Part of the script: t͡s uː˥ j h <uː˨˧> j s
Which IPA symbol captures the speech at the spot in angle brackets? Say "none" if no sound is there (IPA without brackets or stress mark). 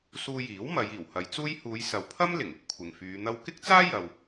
uː˨˧